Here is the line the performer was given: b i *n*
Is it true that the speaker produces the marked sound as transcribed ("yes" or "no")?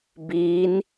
yes